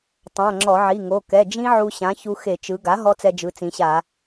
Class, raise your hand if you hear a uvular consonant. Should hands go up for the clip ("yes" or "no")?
no